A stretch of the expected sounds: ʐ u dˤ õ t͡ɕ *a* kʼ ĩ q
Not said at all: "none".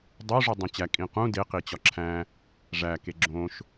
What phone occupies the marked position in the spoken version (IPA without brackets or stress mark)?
æ